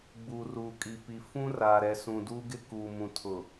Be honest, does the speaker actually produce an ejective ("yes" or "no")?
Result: yes